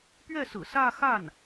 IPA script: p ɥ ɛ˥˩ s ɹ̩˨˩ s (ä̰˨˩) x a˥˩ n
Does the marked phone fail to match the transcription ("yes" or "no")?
yes